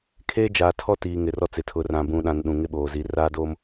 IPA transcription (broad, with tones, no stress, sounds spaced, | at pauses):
kʰ eː˦ d͡ʒ aː˨ tʰ ɔ˦ t iː˨ ŋ ɪ˨ r ɔ˦ t͡s ɪ˨ tʰ ʊ˨ r ã˨ b ũ˨ ɗ ã˨ n ɗ ũ˨ ŋ ɪ˦ ɓ oː˨ z i˨˦ r aː˦ d oː˦ m